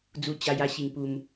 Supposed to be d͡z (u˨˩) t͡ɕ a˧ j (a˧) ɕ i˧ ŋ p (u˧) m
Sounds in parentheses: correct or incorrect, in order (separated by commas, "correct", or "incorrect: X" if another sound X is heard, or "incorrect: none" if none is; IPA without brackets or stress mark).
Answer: incorrect: u˧, incorrect: a˦, correct